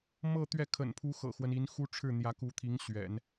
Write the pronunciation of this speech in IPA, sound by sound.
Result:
m ɤ˥˧ t̪ ɥ ɛ˥˩ kʰ ə̰˨˩ n pʰ u˧˥ x ɤ̰˨˩ x w ə˦ n i˧˥ n x u˥ ʈ͡ʂʰ ɻ̩˥˩ n̪ j ä˧˥ k u˧˥ t̪ʰ i˧˥ ŋ ɕ ɥ ɛ̰˨˩˦ n

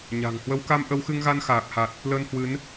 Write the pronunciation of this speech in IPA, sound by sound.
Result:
ɲ a̤˨˩ ŋ h w ə˨˦ w k a˧ m ʔ ə˧ w x ɨ˧ ŋ ɣ a˧ n x aː˨˩ k̚ h a˨˩ t̚ | l əː˧ n h w ɨ˨˦ n

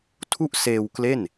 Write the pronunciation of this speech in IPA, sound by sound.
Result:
tʰ u˥˩ ʔ s eː˧ w k l e˥˩ n

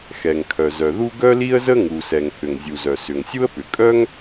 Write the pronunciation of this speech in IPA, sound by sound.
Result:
x ɛ˩ ŋ kʰ œ˩ z œ˩ ð u˥ ɡ œ˥ l i˥ ə̯ z ə˥ ŋ u˩ s ɛ˩ ŋ θ ʏ˩ ŋ zʲ u˩ z œ˩ s ʏ˩ ŋ sʲ u˥ ə̯ p ʏ˩ kʼ œ˥ ŋ

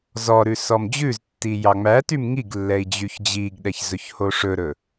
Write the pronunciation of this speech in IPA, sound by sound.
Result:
z ɔ ɾ ʉ s ɔ m d͡ʑ ʉ z tː i j ɑ ŋ͡m æ t y m ŋ i ɡ lː ɛ i̯ d͡ʑ y ç d͡ʑ i ɡ ɗ ɛ ç z ɵ ç h o ʂ ɵ ɾ ɵ

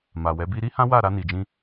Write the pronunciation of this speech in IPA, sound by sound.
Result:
m a˨ w ɛ˨˦ b i˦ ɾ i˦ h ã˦ w a˦˨ ɾ a˧ n i˨ d͡ʒ ĩ˧

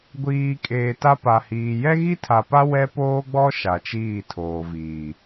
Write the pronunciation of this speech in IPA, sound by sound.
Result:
ɡʷ iː˨ kʼ eː˨ t a˦ p a˨ h iː˨ j ɛ˦ ɣ i˦ tʰ a˨ p a˦ w ɛ˦ p oː˦ ɡ͡b ɔ˦ ʃ a˨ t͡ʃ iː˦˨ tʰ oː˨ v iː˨

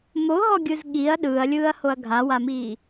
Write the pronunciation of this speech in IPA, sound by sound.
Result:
m o ɦ ɔ ɡʲ ɯ z ɠ i ɐ̯ ɗ ɯː ɐ̯ lʲ ɯː ɐ̯ h o ɐ̯ ɡʱ a w a m iː

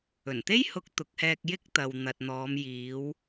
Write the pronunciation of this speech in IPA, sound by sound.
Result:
ɵ˨˩ n t̪ e˥ j h ʊ˧ k̚ t̪ ʊ˨ k̚ h ɛː˧ k̚ j ɪ˥ k̚ t̪ ɐ˨ w n̪ ɐ˨ t̚ n̪ ɔː˨˧ m j iː˨˧ w

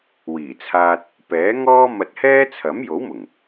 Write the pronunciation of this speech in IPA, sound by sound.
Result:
w iː˨˩ t͡sʰ aː˧ t̚ | p ɛː˨˥ ŋ ɔː˥ m ɐ˧ t̚ h ɛː˥ t͡sʰ ɐ˨˥ m j o˨˥ w m ʊ˨˩ ŋ

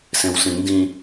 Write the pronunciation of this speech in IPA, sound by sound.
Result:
s ẽ w s ĩ n d ĩ

